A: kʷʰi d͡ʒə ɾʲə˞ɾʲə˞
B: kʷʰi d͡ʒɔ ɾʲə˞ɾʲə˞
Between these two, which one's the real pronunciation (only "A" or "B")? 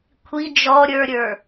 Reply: B